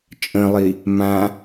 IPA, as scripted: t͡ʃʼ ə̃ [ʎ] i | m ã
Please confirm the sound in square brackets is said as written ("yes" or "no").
no